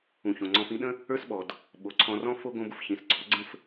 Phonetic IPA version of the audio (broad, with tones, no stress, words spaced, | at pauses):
ũ˨ çõ˨ ŋ͡ǀɔ̃˧fĩ˦ɗə̃˦ | ə˞˦sɓɔ˨d | ɓo˨ǀʰɔ̃˧rɔ̃˦ fo˦ ɡõ˦bʊ˦fçĩ˨s ɡ͡ǀɔ˨˦ ɡ͡ǀə̃˦f